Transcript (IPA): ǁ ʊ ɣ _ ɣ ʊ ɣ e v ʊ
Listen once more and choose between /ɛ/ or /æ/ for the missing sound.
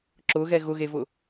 ɛ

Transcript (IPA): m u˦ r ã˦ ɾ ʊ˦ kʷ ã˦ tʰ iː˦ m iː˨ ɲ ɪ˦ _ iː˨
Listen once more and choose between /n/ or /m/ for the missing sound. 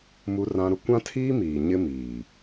m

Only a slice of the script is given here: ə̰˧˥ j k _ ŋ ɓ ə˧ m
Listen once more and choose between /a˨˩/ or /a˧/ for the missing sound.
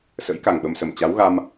a˨˩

